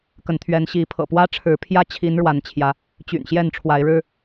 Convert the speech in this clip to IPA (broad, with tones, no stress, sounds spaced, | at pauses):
k ə˨˦ n t̪ʰ ɥ ɛ˨˦ n ɕ i˨˦ pʰ ɤ̰˨˩ p w ä˦ ʈ͡ʂʰ ɻ̩˨˦ pʰ j ä˦ t͡ɕʰ i˨˦ n ɻ w a˨˦ n t͡ɕʰ j ä˨˦ | t͡ɕ y̰˨˩ n ɕ j ɛ˥˨ n ʈ͡ʂʰ w a˨˦ ɪ̯ ɻ ɻ̩˦